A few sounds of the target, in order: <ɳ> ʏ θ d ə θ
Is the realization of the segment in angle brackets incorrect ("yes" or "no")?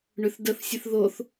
no